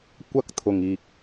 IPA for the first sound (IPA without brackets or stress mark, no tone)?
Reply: kʷ